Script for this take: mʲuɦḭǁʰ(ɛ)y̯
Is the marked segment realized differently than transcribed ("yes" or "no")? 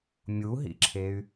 yes